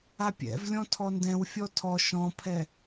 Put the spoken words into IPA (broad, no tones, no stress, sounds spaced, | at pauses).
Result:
a pʲ ɛ̰ v lʲ ɔ̃ tʰ ɔ n d ɛ̃ w fʲ ɔ tʰ ɔ ʃ ɔ̃ pʰ ɛ